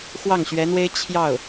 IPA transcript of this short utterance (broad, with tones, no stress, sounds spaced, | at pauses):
x w ɑ˥˩ ŋ ɕ ɥ ɛ˧˥ n̪ w e˥ ɪ̯ t͡ɕʰ j ɑ˥˩ ʊ̯